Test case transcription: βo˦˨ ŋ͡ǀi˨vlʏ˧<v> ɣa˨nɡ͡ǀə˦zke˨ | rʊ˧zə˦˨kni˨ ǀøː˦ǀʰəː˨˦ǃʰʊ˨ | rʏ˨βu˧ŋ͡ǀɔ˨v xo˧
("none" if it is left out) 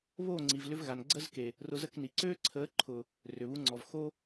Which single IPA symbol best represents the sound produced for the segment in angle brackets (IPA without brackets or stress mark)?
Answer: v